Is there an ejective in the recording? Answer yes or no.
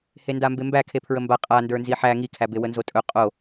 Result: yes